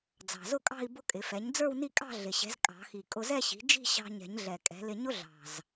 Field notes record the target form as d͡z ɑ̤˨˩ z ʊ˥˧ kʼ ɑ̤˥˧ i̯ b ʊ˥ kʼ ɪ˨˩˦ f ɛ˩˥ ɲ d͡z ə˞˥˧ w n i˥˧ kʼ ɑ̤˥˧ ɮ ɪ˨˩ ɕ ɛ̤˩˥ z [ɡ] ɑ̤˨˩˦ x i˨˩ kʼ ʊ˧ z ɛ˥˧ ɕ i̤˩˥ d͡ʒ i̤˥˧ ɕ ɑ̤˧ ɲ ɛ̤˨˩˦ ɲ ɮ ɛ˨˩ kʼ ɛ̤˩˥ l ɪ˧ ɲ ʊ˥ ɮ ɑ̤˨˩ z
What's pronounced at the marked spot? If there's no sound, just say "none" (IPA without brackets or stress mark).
kʼ